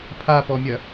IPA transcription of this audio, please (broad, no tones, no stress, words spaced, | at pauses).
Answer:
pʰapɔmʲɐ